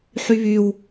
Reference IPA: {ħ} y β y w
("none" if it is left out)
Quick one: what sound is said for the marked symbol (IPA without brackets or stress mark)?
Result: ħ